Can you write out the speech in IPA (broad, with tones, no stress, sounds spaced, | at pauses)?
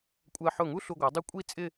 kʷʼ ɜ˧ ħ ʊ˧˩ ŋ u˥ ɬ u˧ ɡʷ ʌ˩˧ dˤ ɪ˥˧ kʷʼ i˥˧ t͡sʼ ɪ˥˧